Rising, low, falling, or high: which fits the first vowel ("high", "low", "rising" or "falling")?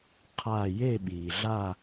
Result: falling